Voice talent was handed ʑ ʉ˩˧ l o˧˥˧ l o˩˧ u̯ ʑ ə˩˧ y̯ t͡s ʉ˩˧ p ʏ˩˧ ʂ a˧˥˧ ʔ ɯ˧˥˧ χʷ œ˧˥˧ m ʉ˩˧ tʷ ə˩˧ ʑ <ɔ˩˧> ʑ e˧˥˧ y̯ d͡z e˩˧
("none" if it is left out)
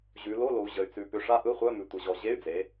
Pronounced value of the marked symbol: ɔ˩˧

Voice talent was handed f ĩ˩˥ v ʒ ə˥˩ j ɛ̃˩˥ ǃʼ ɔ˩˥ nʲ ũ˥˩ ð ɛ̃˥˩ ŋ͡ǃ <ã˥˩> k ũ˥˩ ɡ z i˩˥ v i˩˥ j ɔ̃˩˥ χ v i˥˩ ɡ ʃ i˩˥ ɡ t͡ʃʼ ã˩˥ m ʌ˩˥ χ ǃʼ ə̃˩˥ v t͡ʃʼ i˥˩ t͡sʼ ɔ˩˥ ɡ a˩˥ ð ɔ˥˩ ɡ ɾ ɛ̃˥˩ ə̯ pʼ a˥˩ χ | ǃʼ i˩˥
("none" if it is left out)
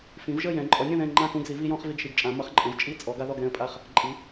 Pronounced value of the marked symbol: ã˥˩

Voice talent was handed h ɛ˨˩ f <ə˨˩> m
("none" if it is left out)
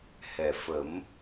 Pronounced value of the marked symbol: ə˨˩˦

